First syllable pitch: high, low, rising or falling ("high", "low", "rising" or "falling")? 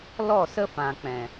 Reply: falling